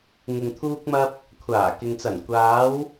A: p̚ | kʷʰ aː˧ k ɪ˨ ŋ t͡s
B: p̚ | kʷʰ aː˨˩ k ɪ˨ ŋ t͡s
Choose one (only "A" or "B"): B